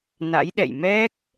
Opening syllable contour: rising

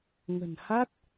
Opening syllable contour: low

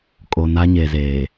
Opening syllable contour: low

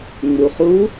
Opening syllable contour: low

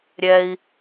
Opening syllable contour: low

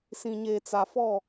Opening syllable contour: low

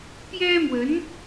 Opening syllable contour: high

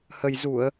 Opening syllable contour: low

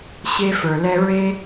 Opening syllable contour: high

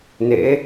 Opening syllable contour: rising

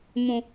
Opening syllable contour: high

